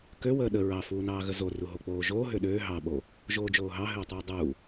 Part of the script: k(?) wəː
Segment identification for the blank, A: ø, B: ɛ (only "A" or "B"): A